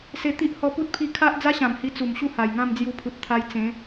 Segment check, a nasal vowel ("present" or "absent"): present